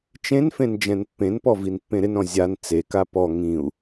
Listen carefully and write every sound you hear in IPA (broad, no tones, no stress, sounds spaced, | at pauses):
t͡ʃ ẽ n f ẽ n d͡ʒ ɛ̃ n pː ẽ n p ɔ v i n pː ẽ ɾ ɪ n ɾ ɔ̃ zʲ a n t͡s e k a p ɔ ŋ ĩ u̯